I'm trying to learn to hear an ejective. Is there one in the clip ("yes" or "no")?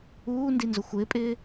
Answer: yes